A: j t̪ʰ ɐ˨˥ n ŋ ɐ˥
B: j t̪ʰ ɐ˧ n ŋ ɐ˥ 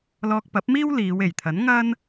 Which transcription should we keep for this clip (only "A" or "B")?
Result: A